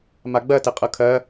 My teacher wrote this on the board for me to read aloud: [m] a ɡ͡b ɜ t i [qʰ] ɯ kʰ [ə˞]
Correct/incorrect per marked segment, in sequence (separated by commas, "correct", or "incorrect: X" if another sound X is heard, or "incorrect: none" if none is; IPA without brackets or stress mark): correct, incorrect: qʼ, incorrect: ɜ